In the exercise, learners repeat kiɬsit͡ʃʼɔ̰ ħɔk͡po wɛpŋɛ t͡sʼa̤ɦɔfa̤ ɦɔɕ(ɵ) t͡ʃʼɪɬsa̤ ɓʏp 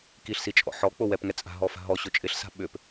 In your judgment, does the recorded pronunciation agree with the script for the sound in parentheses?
yes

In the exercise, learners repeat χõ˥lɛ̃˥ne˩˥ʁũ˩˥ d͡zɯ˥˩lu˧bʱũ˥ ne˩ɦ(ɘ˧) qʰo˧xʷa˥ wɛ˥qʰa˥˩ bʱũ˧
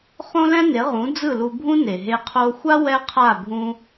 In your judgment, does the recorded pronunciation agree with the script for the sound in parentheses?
no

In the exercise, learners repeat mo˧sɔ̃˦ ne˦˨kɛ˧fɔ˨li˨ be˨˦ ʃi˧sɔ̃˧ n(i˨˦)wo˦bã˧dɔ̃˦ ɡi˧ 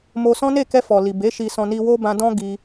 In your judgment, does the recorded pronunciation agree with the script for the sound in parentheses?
no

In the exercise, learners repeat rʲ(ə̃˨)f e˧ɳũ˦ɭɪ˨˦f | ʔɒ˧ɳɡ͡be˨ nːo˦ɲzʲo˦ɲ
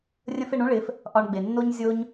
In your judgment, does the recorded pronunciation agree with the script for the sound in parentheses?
no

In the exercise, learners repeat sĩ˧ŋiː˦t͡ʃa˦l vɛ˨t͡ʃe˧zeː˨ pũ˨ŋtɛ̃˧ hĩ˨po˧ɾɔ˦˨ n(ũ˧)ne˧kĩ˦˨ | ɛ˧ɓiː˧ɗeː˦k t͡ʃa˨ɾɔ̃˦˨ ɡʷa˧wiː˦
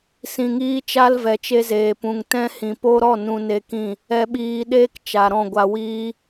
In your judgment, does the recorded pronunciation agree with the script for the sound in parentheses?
yes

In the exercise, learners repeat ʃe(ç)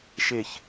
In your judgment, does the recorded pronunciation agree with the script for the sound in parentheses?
yes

